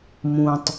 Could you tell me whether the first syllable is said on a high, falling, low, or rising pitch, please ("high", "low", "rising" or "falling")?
low